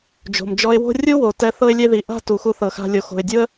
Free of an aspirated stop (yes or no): yes